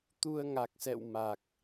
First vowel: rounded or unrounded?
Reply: rounded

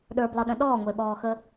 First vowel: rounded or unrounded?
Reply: unrounded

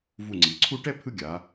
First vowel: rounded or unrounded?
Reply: rounded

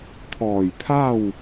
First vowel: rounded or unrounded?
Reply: rounded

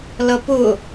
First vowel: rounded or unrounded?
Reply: unrounded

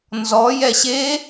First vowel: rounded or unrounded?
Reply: rounded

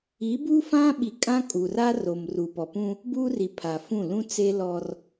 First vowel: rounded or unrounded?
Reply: unrounded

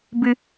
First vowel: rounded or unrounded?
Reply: unrounded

